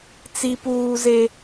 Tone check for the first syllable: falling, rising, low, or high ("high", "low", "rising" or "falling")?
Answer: high